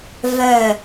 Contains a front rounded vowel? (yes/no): yes